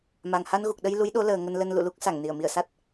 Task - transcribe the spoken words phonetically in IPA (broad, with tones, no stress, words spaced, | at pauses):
ma˨˩ŋha˧nɣu˨˩k̚ɗə˧j lu˨˦jɗo˨˦ləː˨˩ ŋə˧nlə˧n lṵ˧˨lu˦˥k̚ sa˧˩ŋni˧˩ə̯mi˧˩ə̯sa˦˥t̚